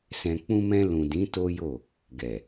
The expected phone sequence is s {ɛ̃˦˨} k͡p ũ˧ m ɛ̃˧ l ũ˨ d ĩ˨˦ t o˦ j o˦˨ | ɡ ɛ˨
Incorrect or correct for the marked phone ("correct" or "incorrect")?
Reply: incorrect